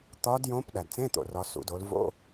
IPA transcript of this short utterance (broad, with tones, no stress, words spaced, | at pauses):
t̪ɒ˧˥djõ˧˥p ɗæ˩dt͡sẽ˧˥˧t̪o̰˩rɒ˩˧ sṵ˩˧do˩˧l vo̰˧˥˧